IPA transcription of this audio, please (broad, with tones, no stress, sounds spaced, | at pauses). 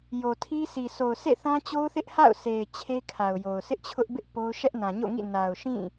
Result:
j o˨ tʰ i˦ sʰ i˨ s o˨ ʊ̯ sʰ ḛ˦˨ θ ã˦ t͡ɕ o˦ ʊ̯ θ ɪ˦ ʔ h a̰˦˨ ʊ̯ s e˨ ɪ̯ t͡ɕʰ e˦ kʰ a˨ ʊ̯ j o˨ ʊ̯ s ɪ˦ ʔ t͡ɕʰ ʊ˦ ʔ b ɪ˦ ʔ p o˦ ʊ̯ ʃ ɛ˦ ʔ n ã˨ ɲ o̰˦˨ ŋ ḭ˦˨ n a˨ ʊ̯ ʃ ĩ˦˨